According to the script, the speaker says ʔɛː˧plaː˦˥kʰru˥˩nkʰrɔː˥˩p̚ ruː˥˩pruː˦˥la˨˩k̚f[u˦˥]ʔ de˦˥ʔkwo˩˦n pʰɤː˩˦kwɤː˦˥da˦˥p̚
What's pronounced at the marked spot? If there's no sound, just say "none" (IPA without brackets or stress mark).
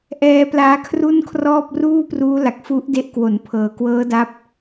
u˦˥